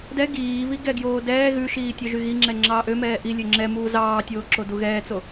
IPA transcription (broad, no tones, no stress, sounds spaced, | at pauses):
d ɛ ɡ iː β i ɡ ɛ ɡ j oː d ɛː ɣ ʉ ʃ iː tʲ œ ʒ y ɣ i ŋ͡ǁ ɛ ŋ͡ǁ ɑː ʔ ø m ɛː ʔ i lʲ ø ŋ͡ǁ ɛ m uː z ɑː tʲ oː ǁ o d u ɣ ɛː t͡s o